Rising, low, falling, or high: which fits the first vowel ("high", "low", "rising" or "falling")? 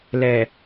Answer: low